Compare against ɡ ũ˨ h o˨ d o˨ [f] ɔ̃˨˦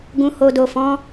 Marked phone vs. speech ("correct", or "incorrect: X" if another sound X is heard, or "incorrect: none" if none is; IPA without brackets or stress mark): correct